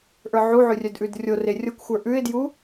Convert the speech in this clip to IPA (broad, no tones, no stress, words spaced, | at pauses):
ʔə˞ʕuʕʉ rʲœdʔʉdrʲore rʲokʷxʷə˞ ʔʉɪ̯dju